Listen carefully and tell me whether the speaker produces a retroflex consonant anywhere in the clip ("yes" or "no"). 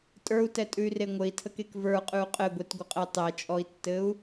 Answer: no